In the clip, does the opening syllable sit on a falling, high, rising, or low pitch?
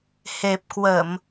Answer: low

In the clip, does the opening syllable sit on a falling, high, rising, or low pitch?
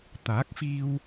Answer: rising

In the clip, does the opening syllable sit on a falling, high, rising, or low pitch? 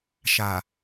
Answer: low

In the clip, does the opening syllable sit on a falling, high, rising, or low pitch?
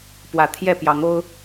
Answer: low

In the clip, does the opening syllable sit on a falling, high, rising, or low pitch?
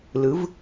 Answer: rising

